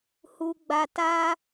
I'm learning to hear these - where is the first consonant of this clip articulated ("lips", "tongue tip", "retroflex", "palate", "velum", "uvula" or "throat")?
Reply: throat